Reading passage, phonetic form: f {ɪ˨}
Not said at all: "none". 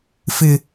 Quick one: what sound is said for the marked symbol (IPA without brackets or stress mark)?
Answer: ɪ˨